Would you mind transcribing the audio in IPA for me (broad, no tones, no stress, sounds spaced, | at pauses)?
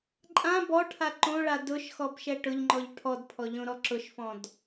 ǃʼ ã b ɔ ʈʰ a ǃ õ ɭ a d ʊ ʃ x ɔ b ʃ ɛ ʈ ʊ ʎ ŋ͡ǃ ɔ ʎ ʈʰ ɔ d pʰ ɔ ʎ õ ɾ ɔ ǁ ʊ ʃ f ɔ̃ d